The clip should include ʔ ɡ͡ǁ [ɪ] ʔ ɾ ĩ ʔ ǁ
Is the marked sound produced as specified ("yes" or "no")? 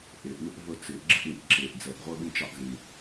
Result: yes